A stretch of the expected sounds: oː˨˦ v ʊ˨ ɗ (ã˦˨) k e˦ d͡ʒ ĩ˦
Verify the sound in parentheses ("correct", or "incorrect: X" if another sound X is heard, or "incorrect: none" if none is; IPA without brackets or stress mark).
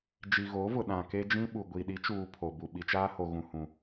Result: incorrect: ã˨